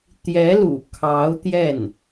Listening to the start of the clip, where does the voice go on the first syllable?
rising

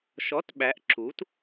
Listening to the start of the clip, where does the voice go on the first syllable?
rising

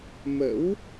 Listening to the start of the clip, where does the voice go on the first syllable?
rising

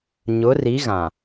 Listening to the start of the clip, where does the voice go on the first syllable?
rising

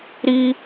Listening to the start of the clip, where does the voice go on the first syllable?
high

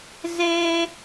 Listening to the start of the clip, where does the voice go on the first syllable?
low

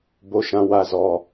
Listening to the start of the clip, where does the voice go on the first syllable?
rising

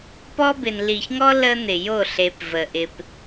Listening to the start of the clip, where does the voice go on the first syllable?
high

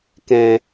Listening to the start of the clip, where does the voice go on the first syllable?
low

